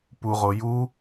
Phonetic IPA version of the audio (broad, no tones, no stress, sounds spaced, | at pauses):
p u ʁ o j u